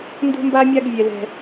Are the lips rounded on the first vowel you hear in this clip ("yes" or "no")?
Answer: yes